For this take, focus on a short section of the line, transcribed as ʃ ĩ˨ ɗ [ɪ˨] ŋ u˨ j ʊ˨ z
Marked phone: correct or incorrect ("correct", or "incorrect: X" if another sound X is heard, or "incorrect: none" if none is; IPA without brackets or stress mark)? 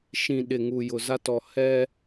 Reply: correct